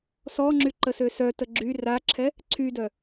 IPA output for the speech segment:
s ɔ ŋ͡ǁ y ǃ ə s ø s œ t ə ɡ͡ǁ y r a ǁʰ ɛ | ǀʰ y d œ

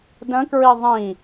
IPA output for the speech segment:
d ə̃ k ɹ i ðˤ ĩ

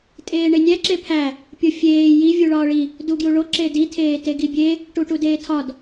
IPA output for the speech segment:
tʼ eː ɳ e nʲ æ ǁ e pʰ æ | pʲ o fʲ eː j i vʲ u ɭ ɒː ɭ i | d u ɡ j u ɭ o ǁ e d i tʰ eː t e ɡ i bʲ e | ʈ u ʈ u d eː tʰ ɒ d

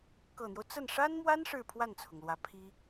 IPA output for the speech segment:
k ɤ˨˩ n̪ j o˦ ʊ̯ t͡s ə˥˩ n ʂ a˥ n m w a˥ n ʂ ɻ̩˥˧ pʰ w a˥˩ n t͡sʰ ʊ˩ ŋ l w ä˧˥ pʰ i˥

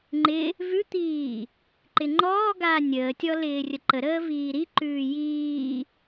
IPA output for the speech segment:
ŋ͡ǃ ɪ | v ʉ t̪ iː | ǃ ɪ ŋ͡ǃ ɔː ɡ aː nʲ əː tʲ ɔ l ɪː rʲ ə ǃ ə ɾ əː v iː ɾ i ǃ ʉː j iː

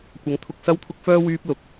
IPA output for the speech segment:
kʷ ɐ˨˧ ŋ t̪ʰ ʊ˧ k̚ s ɐ˥ w t̪ʰ ʊ˥ k̚ f œː˥ w yː˥ p̚ l ʊ˨˥ k̚

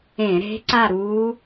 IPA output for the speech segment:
ẽ˧˩˧ ɾ e̤˧˥ ǀ a˦˨ ɾ u˧˥

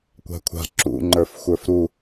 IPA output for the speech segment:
kʷ a̤ kʷʰ a̤ ǁ ṵ ŋ͡ǃ ə˞ f xʷ ə˞ f ɾ u

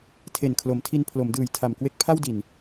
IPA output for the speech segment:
tʰ e˨˩ n kʰ l o˩˦ m tʰ i˧ n pʰ l o˩˦ m d ɯː˨˩ j tʰ a˨˩ m k w e˦˥ k̚ pʰ a˥˩ w d i˨˩ n

